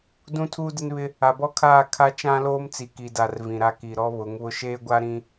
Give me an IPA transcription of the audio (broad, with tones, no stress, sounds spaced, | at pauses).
d ũ˦ tʰ uː˦ d ɪ˦ n β ɪ˦ | a˨ b ɔ˦ kʰ aː˦˨ kʰ a˦ t͡ʃ ã˦ l oː˦ m t͡s i˨ k i˨ d a˨ r v ĩ˨ ɾ a˦ k i˨ ɾ ɔ˦ β ʊ˨˦ ŋ β ʊ˦ ʃ eː˦ ɡʷ a˦ ɾ ĩ˦